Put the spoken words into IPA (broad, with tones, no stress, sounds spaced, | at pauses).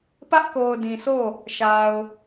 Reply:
p ä˦ ʔ k o˨ ʊ̯ d ĩ˨ sʰ o˦˨ | ʃ a˨ ʊ̯